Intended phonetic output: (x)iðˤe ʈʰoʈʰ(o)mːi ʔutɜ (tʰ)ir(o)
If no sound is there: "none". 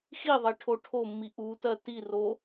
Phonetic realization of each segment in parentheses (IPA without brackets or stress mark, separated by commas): x, o, t, o